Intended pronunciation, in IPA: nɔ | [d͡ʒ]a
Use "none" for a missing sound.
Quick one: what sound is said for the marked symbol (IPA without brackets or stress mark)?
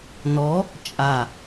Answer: t͡ʃʼ